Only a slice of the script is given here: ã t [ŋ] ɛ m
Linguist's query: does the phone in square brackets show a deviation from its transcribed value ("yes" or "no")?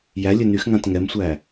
no